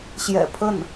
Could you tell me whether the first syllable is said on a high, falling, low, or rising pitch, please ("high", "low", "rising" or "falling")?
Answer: low